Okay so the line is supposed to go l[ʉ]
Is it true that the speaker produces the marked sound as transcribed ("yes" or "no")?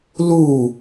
no